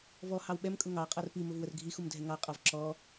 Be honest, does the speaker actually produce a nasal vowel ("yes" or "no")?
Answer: no